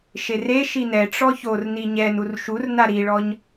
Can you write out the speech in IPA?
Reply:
ʃ e r e ʃ i n ɛ ʈ͡ʂ ɔ ç o r n i ɲ ɛ n u r ʃ u r n a ɾ i ɭ ɔ ɲ

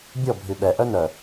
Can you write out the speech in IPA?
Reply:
bʲ ɔ bʱ y ɓ ɛ ʔ œ n œ

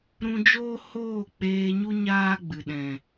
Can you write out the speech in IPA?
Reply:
ɾ ũ˧ d͡ʒ oː˦ h oː˦˨ k͡p eː˧ ɲ u˦ ɲ aː˦ ɡ͡b ɨ˨ ɗ ɛ̃˨

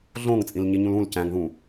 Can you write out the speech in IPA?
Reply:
ɮ õ ŋ t͡sʼ ĩ l ɲ i ɲ ũ l ũ l c æ̃ ŋ ð ũ

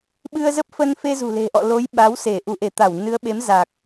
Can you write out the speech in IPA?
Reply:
ɓ ɨ˧ ə̯ z ə˦˥ p̚ f ə˧ n f e˧ z ṳ˨˩ l e̤˨˩ ʔ ɔ̰˧˨ l o˨˦ j ɓ a˨˦ w s e˧˩ ʔ u˧˩ ʔ e˧˩ t̪ a˧˩ w n ɨ˨˦ ə̯ ɓ e˨˦ m z a˨˩ k̚

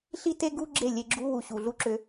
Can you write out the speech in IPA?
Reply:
ɬ i˦ t e˦ ɡ u˦ ɡ͡ǁ e˦˨ lʲ e˧ ɡ͡ǁ u˦ w u˨ ɕ u˨ ɮ u˦ ǁ ʏ˧

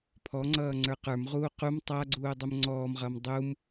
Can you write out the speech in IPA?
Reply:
pʰ ɔ ŋ͡ǀ ʌː ŋ͡ǀ ə˞ q ə˞ m ʁ uː q u m tˤ a ɡ͡ǀ uː dˤ u m ŋ͡ǀ ɔː m ʁ ʌː m dˤ u m

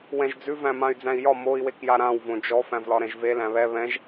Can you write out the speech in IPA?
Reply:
w ɛ̃ ʒ d͡z ʉ v æ̃ m ã y̯ d͡z æ̃ i̯ j ɒ m o i̯ w e k j a ɾ ã w v õ d͡ʒ ɔ f æ̃ v l ɒ ɾ ɛ̃ ʒ v e l æ̃ β ɛ β ɛ̃ ʒ

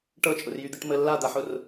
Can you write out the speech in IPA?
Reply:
ʈ ɤ t͡ʃʼ ʊ r j y d̪ i ʈ m ə lː a d̪ a ħ ʊ r

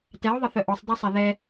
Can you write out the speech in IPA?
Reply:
t ɛ ʊ̯ ðˤ ə θ œ ʔ ɔ sˤ dˤ ɛ sˤ ɛ ð ɛ

